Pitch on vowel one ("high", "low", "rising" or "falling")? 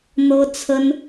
high